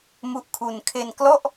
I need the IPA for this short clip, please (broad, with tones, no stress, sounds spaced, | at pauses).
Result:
m u˦˥ ʔ kʰ u˧ n kʰ e˧ n k l ɔ˥˩ ʔ